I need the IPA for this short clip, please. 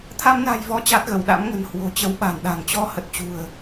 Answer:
t̪ʰa˧mna̤˨˩jvɔ˨˦ t͡ɕa˦˥t̚ɣə˧˩wɗa̰˧˥mŋə̤˨˩n hwo̤˨˩t͡ɕə˨˦wɓa̤˨˩nɗa̤˨˩ŋ t͡ɕɔ˧hə˨˩t̚ t͡ɕṳ˨˩ə̯

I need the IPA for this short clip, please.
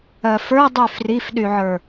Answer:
ɜfə˞dˤy frifɗyʕə˞

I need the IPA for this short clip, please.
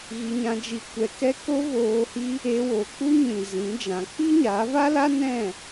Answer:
ɣi˧ɲã˧d͡ʒi˧ kʷɛ˧kɛ˦ ko˦voː˧hi˦ | e˧wo˨k͡pu˦ɲĩ˨ zĩ˨˦d͡ʒã˨˦ k͡pi˦ɲa˨˦va˦la˦ nɛ̃˦˨

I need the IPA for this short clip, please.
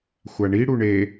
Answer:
xʷaɳi ɽuɳe

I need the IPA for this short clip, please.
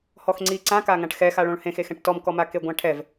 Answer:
hɔxŋ͡ǀi ǀãkaŋãʈ xɛxaɭõɭ hẽxexɛ̃ʈ tɔmkɔma keɡʷãʈʰɛv

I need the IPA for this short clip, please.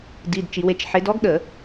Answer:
di˩˧˩d t͡ʃi˩˧we˨˥t͡ʃħe˨˥d ɔ˦˥ɡɗə˧˩˧

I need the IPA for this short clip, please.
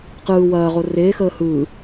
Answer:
qɯː wɐːʁo reːxəː hɯː

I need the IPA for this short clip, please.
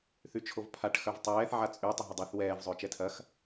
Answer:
θyt͡ʃʰovpʰaʈ xœvtˤɛːθ ʕat͡sʼy tˤəɦədˤoθ wɛːv zˤʏːt͡ʃɛtʰɐx

